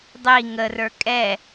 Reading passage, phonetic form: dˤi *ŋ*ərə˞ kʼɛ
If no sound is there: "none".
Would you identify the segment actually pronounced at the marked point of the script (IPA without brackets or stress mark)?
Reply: ŋ